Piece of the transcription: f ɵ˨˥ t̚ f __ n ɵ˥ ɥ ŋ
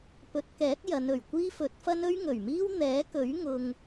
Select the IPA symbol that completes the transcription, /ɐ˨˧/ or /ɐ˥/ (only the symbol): ɐ˥